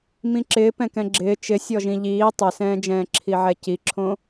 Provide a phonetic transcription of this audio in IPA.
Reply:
mĩǁɪː pɛ̃kɛ̃ɡ͡ǁɪː t͡ʃɪ sʲɔʒĩʎiː tˤɛsɛ̃ːd͡ʒɛ̃ː ǁʰiʕɛciǁʰõ

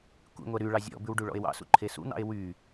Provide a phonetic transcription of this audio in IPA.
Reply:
kʷḭŋʷɛ ɾy ɭɑzʲɔ̰bʉw ɖuɭɔ̰e̯wɑ̰sṵ ǃʰesṵn̪ɑ̰e̯ wy

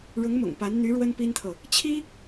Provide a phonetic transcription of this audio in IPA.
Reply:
ɻʊ˧˥ŋmʊ̰˨˩ŋ pa˧˥n n̪y˧˥ ɻwə˥npi˥nt̪ʰɤ˨ | t͡ɕʰi˥

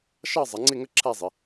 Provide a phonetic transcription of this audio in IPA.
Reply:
ʃɑ˥˨ zˤʌ˩˧ŋ͡ǀɪ˥˨ŋə˥˨ ǁʰæ˥˨zˤɪ˩˧

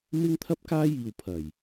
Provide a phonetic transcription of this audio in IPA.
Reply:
mɪ˥ŋt̪ʰɐ˥p̚kaː˥jiː˨w pʰɐ˨˩j

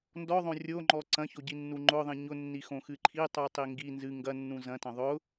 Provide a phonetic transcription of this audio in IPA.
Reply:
ndɔðˤõ rʲoŋ͡ǃɔ ǀɐ̃çoɟinːu ŋ͡ǃʊðˤĩ ɲʊnːixõxɨ ǃʰitˤutˤi ŋɡi nzɨ ŋɡɐnːũ zɐ̃tɐ̃ ðˤʊ

